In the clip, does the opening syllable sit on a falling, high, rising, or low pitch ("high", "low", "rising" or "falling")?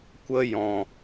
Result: high